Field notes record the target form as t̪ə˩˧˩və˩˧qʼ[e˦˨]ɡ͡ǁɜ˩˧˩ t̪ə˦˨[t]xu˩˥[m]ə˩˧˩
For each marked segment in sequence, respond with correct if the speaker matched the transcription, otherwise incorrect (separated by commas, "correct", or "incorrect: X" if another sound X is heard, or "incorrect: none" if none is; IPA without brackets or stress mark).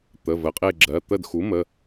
correct, incorrect: d, correct